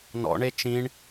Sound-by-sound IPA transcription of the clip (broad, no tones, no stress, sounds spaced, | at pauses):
n ɔ̰ ɳ e t͡ʃ ĩ ɳ